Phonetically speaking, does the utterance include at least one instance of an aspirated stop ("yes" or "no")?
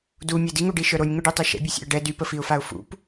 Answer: no